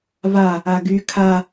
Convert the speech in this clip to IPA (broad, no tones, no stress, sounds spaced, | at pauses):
v a | a ɡ y kʰ a